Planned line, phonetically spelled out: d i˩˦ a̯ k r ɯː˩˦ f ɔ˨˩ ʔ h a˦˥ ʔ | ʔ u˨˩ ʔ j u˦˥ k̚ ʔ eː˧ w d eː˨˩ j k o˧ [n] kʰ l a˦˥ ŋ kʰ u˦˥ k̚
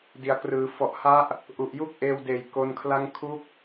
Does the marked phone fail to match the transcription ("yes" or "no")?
no